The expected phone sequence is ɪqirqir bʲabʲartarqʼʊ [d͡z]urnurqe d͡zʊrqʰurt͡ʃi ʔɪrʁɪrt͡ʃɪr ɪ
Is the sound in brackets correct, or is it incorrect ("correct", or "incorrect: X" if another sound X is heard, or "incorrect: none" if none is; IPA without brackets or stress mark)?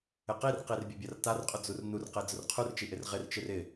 correct